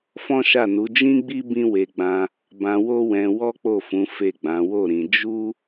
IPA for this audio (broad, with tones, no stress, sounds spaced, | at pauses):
f ɔ̃˦ ʃ a˦˨ n u˨˦ d͡ʒ ĩ˦ ɡ͡b i˦ b ĩ˦ w e˧ ɡ͡b ã˧ | b ã˧ w o˦ w ɛ̃˧ w ɔ˦ k͡p o˦˨ f ũ˨˦ f e˦˨ ɡ͡b ã˨˦ w o˦˨ ɾ ĩ˧ d͡ʒ u˦